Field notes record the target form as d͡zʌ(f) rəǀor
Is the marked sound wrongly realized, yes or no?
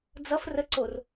no